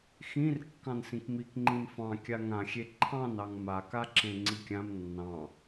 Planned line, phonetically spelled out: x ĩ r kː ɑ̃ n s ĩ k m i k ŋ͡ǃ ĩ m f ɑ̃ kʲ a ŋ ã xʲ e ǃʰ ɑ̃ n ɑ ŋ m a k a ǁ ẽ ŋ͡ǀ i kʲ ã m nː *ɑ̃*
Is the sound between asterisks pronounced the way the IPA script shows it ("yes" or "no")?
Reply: yes